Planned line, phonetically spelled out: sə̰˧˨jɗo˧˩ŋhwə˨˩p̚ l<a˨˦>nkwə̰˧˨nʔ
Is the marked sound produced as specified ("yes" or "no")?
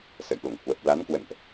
yes